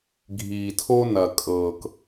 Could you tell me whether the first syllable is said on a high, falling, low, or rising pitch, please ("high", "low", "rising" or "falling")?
low